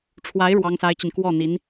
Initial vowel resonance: oral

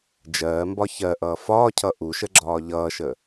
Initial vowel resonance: oral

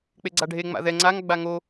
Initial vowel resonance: oral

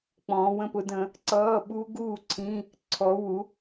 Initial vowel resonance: nasal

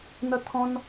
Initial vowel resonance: oral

